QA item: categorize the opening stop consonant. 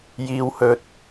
plain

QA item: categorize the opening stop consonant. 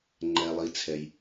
click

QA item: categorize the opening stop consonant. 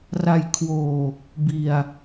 aspirated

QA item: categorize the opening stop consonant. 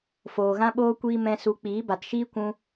implosive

